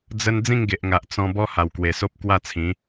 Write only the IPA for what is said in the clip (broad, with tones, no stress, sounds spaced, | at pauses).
d͡z ə˦ n d͡z ĩ˥˧ ŋ ɡ e˨ ʔ ŋ a˨ ʔ t͡s ɔ̃˧ b ɔ˦ h a˨˩ w k w e˨˩ s o˦ p̚ k w a˥˧ t͡sʰ ĩ˨˦